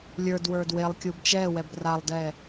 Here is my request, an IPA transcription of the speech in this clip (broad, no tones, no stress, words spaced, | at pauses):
lʲə˞dwə˞d welˠkʲub t͡ʃɛ wɛbralˠdɛ